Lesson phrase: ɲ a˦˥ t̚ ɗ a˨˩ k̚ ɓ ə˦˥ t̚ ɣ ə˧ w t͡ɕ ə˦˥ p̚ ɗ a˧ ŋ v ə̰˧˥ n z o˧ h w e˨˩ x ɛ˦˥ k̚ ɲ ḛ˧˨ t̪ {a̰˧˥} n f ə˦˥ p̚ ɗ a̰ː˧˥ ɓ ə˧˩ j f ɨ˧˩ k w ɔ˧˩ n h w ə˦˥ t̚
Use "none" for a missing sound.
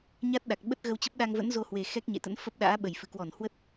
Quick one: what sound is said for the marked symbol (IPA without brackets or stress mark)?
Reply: ə̰˧˥